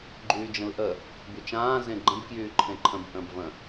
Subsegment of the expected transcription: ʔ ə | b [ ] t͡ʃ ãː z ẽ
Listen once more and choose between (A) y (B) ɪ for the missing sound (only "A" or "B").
A